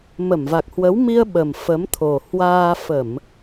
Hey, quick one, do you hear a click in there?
no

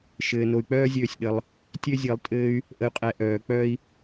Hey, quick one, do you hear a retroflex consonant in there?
no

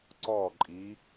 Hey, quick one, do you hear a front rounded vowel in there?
no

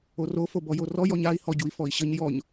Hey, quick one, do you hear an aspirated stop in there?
no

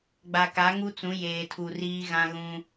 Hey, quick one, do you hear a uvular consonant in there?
no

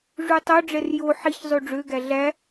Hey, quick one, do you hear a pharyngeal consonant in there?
yes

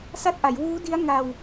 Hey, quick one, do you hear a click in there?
no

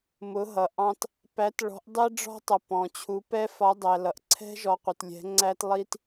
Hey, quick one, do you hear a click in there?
yes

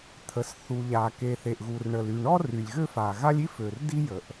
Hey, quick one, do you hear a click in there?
no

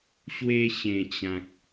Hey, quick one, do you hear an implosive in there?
no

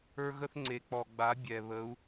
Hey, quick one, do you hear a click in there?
yes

